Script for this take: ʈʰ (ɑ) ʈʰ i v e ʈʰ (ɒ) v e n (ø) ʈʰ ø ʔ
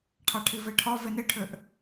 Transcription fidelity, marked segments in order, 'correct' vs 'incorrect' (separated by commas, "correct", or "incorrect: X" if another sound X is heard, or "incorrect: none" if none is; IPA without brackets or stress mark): correct, correct, incorrect: e